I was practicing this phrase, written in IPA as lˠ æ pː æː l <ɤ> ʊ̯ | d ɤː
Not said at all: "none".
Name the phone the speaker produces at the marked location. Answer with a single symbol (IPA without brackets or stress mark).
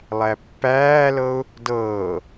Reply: ɤ